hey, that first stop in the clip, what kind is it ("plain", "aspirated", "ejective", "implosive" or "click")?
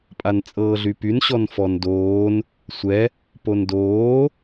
ejective